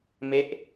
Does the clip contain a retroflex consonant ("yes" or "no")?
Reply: no